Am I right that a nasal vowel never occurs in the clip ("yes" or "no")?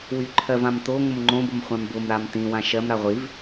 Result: no